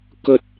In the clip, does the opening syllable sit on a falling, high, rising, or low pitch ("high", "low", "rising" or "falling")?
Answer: high